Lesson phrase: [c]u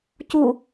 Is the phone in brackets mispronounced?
no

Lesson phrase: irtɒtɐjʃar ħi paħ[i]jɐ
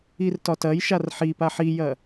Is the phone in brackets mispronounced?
no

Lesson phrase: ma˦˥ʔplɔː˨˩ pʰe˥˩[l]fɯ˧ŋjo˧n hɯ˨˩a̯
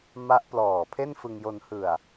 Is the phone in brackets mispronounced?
yes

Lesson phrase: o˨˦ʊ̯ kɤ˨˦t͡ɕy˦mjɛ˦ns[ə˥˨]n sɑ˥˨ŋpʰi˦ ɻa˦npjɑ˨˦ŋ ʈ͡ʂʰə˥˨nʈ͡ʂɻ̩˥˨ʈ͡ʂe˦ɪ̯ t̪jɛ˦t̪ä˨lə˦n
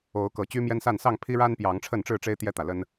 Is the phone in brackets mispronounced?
yes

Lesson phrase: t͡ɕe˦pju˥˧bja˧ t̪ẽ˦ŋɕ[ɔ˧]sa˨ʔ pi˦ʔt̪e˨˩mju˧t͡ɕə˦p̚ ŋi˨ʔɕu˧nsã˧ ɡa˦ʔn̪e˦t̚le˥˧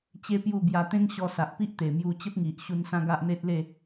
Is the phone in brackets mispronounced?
no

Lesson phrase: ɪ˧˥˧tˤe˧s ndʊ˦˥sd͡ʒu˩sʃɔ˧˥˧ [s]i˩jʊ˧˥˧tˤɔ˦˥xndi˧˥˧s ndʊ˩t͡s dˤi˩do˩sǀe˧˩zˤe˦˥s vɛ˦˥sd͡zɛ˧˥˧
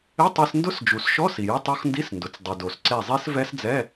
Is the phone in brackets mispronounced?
no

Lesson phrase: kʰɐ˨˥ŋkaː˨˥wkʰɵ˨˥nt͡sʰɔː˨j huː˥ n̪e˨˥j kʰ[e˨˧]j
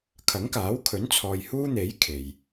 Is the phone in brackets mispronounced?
yes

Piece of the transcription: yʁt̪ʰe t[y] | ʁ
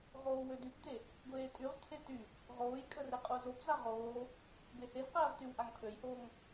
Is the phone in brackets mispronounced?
no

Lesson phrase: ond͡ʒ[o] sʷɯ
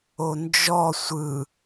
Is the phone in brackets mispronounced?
yes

